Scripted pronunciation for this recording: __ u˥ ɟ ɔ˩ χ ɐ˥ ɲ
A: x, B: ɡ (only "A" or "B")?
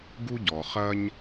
B